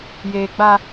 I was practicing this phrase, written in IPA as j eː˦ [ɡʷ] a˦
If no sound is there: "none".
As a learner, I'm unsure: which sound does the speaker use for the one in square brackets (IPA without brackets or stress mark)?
ɡ͡b